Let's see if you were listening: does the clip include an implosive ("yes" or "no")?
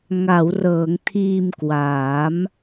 no